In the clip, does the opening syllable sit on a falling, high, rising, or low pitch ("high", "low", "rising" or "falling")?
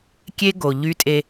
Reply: high